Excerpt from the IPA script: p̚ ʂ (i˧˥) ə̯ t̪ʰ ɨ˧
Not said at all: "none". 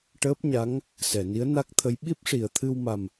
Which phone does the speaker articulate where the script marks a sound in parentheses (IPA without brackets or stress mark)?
i˨˩˨